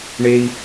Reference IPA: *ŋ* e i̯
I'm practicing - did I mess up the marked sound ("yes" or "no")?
yes